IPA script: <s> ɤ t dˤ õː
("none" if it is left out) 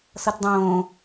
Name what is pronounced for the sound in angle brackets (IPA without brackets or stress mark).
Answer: s